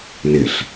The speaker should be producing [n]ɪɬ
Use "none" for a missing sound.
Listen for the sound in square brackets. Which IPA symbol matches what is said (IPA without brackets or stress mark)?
n